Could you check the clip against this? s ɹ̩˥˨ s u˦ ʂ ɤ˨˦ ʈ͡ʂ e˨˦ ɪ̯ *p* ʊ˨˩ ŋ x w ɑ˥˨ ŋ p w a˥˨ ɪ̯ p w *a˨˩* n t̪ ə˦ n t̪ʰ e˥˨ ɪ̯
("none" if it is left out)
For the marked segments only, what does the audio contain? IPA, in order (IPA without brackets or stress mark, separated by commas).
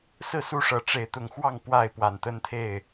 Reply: t̪, a˨˩